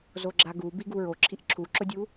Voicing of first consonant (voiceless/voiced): voiced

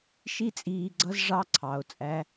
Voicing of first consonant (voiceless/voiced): voiceless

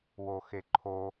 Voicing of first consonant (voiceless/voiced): voiced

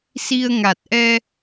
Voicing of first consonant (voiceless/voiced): voiceless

